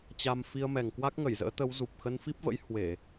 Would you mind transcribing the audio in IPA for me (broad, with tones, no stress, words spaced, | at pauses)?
t͡ɕa˧m fi˧ə̯mɛ˨˩ŋkwa˦˥k̚ ŋə˧˩jzə̰ː˧˥t̪ə˨˦w zu˨˩p̚xə˧nfi˦˥p̚və̰˧˥j hwe˧˩˨